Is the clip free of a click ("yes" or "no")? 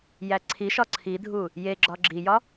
no